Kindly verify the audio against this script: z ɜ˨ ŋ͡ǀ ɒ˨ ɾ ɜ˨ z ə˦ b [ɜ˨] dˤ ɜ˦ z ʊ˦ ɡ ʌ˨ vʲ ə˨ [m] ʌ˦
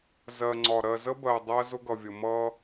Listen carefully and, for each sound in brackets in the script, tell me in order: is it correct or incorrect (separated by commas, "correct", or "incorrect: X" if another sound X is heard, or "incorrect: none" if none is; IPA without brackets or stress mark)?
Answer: correct, correct